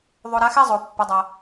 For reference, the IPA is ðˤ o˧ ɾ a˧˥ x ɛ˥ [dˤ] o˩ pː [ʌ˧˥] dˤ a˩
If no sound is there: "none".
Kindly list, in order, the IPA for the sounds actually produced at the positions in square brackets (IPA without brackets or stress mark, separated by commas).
zˤ, ʌ˩˧